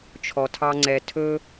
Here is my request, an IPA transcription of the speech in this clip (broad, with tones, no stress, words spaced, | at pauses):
t͡ʃʰɔ˨ tʰɑ˦ŋ͡ǀɛ˧ tʰɵ˦